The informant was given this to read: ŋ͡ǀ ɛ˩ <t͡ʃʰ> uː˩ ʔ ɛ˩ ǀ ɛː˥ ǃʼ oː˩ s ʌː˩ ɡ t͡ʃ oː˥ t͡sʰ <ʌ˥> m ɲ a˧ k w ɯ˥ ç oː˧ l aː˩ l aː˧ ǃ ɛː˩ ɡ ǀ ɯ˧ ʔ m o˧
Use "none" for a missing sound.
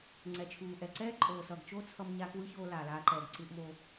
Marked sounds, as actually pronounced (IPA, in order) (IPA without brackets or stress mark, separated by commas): t͡ʃʰ, ʌ˧